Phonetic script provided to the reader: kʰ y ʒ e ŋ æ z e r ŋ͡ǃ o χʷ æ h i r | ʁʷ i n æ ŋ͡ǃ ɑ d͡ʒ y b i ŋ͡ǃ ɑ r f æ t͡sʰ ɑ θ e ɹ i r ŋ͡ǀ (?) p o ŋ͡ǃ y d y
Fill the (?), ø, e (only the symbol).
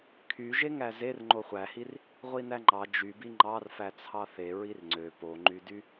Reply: ø